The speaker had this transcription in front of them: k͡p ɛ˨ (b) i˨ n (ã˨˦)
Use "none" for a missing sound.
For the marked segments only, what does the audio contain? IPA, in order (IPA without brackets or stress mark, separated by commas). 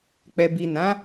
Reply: b, ã˨˦